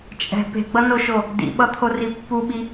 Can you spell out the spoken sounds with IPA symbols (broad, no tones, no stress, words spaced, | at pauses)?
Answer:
t͡ʃʼɛ̤ pe̤ɡ͡bʌnoʃo | dḭɓʌt̪ʰori pːuɓi